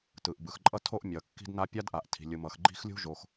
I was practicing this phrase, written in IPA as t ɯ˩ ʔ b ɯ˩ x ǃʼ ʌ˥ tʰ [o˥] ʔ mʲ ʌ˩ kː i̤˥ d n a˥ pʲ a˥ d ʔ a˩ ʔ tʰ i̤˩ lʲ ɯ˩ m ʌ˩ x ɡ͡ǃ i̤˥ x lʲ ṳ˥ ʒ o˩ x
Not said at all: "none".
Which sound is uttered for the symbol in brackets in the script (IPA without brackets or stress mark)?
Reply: o˥